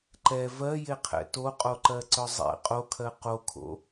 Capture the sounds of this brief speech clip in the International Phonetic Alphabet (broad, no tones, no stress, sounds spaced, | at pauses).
ǃ ɛ v ɜ j e qʰ ɛ̰ t o qʼ o ǃ ɜ ǀ œ zˤ ɛ̰ qʼ o kʰ ɜ q o kʰ o̰